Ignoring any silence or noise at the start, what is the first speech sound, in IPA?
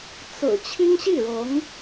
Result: t͡s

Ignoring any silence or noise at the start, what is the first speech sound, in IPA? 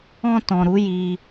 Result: ɔ̃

